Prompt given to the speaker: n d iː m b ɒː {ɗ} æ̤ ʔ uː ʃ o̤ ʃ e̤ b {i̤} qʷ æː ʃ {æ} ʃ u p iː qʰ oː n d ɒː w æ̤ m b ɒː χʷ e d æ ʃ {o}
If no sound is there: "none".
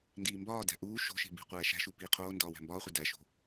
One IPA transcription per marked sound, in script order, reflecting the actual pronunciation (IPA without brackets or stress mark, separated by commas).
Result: d, i̤, æ̤, o̤